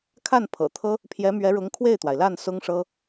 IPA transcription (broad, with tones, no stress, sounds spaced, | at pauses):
kʰ a˥˩ n pʰ ɤ̰˨˩ t̪ʰ ɤ˥ | pʰ j ɛ˧˥ m ɥ ɛ˧˥ ɻ ʊ˧˥ ŋ kʰ w e˥˩ ɪ̯ t̪ w a˩ ɪ̯ l a˥˩ n s ʊ˥ ŋ ʂ ɤ˥